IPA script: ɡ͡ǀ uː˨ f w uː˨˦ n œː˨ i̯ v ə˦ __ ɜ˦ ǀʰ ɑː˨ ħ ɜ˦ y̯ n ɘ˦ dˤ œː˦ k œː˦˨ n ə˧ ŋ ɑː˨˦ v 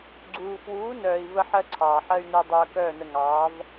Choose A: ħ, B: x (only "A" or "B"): A